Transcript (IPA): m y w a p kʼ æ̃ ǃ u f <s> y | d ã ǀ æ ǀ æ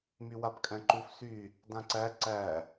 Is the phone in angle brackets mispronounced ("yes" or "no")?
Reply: no